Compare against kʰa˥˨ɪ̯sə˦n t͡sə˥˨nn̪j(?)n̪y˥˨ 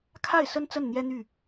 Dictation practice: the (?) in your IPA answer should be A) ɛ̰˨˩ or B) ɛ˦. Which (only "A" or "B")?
B